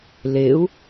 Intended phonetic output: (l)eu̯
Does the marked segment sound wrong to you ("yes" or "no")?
no